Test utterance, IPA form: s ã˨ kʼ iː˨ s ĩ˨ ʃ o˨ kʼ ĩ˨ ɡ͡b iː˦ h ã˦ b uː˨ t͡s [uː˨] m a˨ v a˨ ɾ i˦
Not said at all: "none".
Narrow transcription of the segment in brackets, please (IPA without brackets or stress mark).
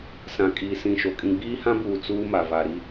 uː˦